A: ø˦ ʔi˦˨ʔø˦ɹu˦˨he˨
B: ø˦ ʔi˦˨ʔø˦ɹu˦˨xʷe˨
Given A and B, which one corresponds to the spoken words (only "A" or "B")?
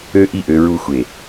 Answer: B